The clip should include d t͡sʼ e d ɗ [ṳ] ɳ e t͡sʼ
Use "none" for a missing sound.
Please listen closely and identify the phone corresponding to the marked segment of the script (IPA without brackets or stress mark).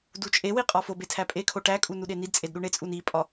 u